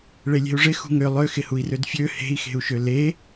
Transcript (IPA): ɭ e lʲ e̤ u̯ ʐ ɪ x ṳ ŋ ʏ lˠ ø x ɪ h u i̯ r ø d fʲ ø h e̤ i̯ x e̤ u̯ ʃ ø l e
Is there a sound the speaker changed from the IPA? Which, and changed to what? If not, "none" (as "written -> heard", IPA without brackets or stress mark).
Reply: none